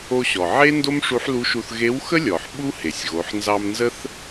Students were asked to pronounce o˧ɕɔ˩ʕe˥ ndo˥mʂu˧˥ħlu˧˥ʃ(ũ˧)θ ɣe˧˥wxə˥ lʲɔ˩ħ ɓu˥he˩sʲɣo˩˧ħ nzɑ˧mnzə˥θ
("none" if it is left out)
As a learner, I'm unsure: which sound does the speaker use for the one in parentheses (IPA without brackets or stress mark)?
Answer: u˧